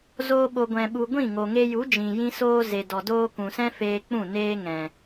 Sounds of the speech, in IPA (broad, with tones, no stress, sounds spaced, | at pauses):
z oː˧ ɓ o˨ ɡʷ ɛ̃˨ ɓ u˨ ɡʷ ĩ˦˨ ŋ o˨ ŋ e˧ j u˨˦ d͡ʒ ĩ˨ j ĩ˧ s oː˧ z e˨ d ɔ˨ d oː˧ k ũ˨ s ɛ̃˦ f eː˧ k͡p ũ˦˨ n eː˧ ŋ ɛ̃˨